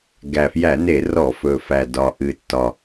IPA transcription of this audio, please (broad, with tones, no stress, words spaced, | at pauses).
ɡæ˨˩ fjæ˧˩˧ne˧˩˧rɔ˧˩˧ fɵ˨˩fæ˨˩dɒ˨˩ ʔɨ˨˩tːɒ˨˩